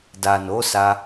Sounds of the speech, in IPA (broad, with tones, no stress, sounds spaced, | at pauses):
d a˨ n o˨˦ s a˧